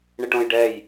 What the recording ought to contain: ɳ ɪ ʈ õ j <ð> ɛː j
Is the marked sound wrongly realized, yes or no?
yes